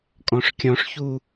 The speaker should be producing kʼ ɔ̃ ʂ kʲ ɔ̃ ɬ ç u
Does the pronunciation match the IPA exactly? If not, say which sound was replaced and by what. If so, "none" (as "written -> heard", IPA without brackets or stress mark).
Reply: ɬ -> ʂ